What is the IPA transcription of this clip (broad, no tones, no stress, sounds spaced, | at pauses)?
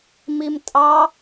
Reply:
m i m tʼ ɑ